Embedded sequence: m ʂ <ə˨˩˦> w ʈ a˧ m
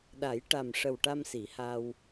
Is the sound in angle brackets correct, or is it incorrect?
incorrect